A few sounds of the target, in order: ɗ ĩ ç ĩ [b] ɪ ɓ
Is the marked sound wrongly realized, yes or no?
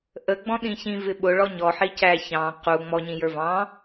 yes